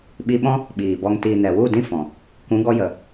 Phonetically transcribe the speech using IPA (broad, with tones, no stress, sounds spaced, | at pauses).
ɓ i˧ ɓ ɔ̃˦ | ɓ iː˨ b ɔ˨ ŋ t iː˨ n ɛ˨ w u˦˨ d ĩ˦ f ɔ̃˨ | k ũ˨˦ ɡ ɔ˧ j ə˨